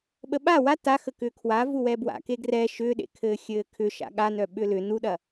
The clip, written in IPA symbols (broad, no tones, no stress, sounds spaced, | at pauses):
ɓ ə ɓ a w a t a x ə k ʏː kʰ w a v u w ɛ b w a̰ k e ɡ r ɛ ʃ ʏː ɗ ḛ kʰ ɘː xʲ ɘː kʰ ʏ ʃ a̰ ɠ a n œ ɓ ʏ l ʏ n u ɗ ɐ